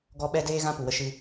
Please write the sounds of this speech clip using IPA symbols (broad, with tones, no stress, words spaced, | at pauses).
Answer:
ɡɔ˧ɓɛ˧ deː˦ɣã˦ pu˨wə˧ʃɨ˧